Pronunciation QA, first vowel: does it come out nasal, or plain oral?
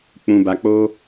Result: nasal